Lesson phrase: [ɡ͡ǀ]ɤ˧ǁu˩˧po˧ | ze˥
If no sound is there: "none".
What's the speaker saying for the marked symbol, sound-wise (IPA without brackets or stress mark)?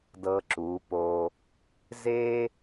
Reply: d